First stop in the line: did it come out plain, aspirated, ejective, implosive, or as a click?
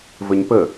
plain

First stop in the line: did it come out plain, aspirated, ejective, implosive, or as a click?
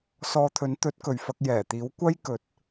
aspirated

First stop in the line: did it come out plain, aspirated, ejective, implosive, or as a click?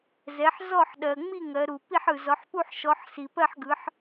implosive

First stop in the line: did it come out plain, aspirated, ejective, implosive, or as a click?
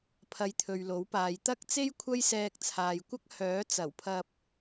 aspirated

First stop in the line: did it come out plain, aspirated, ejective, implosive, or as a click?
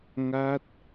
plain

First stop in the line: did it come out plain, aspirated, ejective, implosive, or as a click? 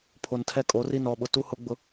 aspirated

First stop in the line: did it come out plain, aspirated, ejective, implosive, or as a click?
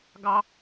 plain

